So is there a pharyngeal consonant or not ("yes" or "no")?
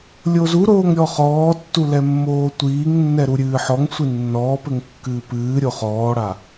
yes